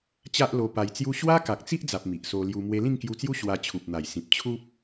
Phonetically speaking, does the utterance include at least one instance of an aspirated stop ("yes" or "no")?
yes